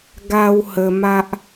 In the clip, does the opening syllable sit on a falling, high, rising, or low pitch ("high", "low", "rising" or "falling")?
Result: high